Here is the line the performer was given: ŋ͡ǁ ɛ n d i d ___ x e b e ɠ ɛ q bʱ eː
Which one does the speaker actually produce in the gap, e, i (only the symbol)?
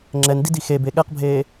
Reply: i